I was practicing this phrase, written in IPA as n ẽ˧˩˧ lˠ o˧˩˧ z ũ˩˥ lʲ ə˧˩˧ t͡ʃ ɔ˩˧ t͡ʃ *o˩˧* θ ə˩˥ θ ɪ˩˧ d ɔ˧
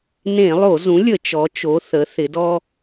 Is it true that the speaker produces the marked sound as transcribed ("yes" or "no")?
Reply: yes